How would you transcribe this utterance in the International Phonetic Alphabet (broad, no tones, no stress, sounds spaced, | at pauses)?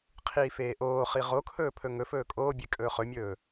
qʰ iː f eː ʔ oː χ i ʁ o kʰ ɵː pʰ ɵ ŋ ɵ f ɵː kʼ oː bʲ e kʼ ɵː χ ɵ mʲ ɵː